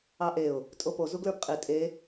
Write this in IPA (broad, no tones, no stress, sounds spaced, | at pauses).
ɑ ʔ e ʊ̯ | tʼ o p o z u ɡ l ə˞ p qʼ i tʼ e